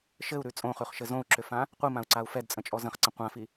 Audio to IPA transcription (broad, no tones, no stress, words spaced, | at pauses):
ʃɘu̯ɾʉ t͡sʼõχʉχʃɘ zõu̯ǁʏfã | qʷimãu̯ǀau̯ fɛdt͡sʼə̃t͡ʃʼɔ zə̃χǀə̃ qʷãfi